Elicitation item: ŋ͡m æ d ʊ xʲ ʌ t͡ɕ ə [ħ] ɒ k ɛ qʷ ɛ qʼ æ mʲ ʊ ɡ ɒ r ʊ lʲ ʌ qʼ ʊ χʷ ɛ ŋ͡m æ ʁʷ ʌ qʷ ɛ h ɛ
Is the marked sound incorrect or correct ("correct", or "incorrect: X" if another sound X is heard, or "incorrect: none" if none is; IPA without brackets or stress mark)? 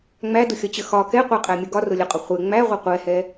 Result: incorrect: x